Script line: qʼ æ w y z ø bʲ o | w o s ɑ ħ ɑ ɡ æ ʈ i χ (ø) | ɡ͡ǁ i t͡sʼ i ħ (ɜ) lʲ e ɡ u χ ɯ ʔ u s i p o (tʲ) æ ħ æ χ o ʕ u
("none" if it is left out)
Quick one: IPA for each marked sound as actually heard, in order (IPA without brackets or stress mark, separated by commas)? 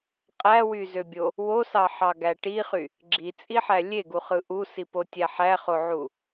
y, æ, tʲ